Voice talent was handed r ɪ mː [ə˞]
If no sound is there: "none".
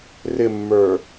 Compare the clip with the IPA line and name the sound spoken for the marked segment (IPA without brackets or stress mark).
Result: ə˞